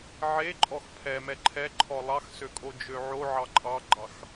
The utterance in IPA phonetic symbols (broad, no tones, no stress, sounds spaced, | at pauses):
ʕ e ǃʼ ɔ x pʰ ɛ m ɛ ǃʰ ɛ ǃʰ ɔ lˠ ɑ x s ø kʼ o d͡ʒ ø ʕ o ʕ ɑ ǃʼ ɑ ɡ͡ǃ ɑ x